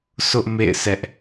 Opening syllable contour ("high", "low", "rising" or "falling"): high